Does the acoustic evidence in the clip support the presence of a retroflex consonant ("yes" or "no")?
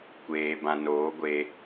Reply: no